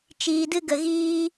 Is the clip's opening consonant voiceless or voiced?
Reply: voiceless